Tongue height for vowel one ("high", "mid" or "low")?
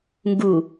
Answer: high